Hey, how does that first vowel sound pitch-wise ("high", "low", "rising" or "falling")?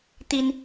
high